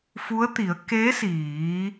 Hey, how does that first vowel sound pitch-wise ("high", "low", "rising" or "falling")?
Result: rising